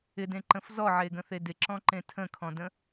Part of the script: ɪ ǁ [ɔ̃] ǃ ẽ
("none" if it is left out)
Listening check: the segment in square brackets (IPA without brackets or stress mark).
ɔ̃